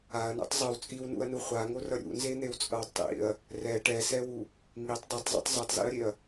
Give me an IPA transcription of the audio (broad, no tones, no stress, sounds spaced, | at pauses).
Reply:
a ɐ̯ n ṵ tˤ zˤ ɯ w t͡sʼ i w n ṵ ɐ̯ n u χʷ a ŋ o r ʌ ɾʲ ṵ n z e n̪ e w t͡sʼ ʌ w tˤ ḭ ɐ̯ | r ɛ ʈ ɛ s ɛ w u | ŋ i tˤ dˤ ɯ tˤ zˤ ṵ tˤ z ɯ tˤ z ḭ ɐ̯ ɾʲ e ɐ̯